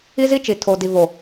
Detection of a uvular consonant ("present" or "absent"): absent